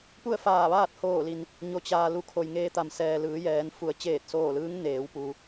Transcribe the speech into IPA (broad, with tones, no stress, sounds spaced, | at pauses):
p u˥˨ ə̯ f aː˧˩ ʋ aː˥˨ t̚ h oː˧˩ l i˩ n | ɲ o˩ t͡ɕ aː˩ l u˧ kʰ o˩ j ŋ eː˧ t̪ a˩ m s ɛː˩ l ɯː˩˧ j ɛː˩˧ n f u˩˧ ə̯ t͡ɕ eː˧˩ t̚ s oː˧˩ l ɯː˧˥ ŋ n eː˩˧ w p u˩